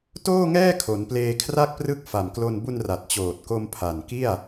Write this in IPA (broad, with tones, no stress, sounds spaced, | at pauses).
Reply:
t oː˥˩ ŋ ɛː˥˩ kʰ o˩˦ n p l eː˧ kʰ r a˥˩ k̚ p r ɯ˥˩ k̚ f a˨˩ m k l o˧ n b u˧ n r a˨˩ t̚ t͡ɕ oː˨˩ t̚ k o˧ m pʰ a˨˩ n k i˥˩ a̯